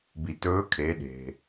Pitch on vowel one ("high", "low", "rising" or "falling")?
low